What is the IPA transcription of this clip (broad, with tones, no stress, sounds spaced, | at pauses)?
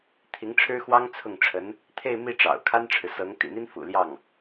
t̪ʰ i˧˥ ŋ ʈ͡ʂʰ ɻ̩˥ x w ɑ˥ ŋ t͡sʰ ʊ˥˩ ŋ ʈ͡ʂʰ ə˧˥ n | t̪ʰ e˥˧ ɪ̯ m i˥˩ ʈ͡ʂ ɑ̰˨˩ ʊ̯ kʰ a˥ n ʈ͡ʂʰ ɻ̩˨ s ɤ˧˥ ŋ t̪ ḭ˨˩ n̪ i˥ n f ṵ˨˩ l j ɑ˥˩ ŋ